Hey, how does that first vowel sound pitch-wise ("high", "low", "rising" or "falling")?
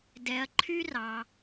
low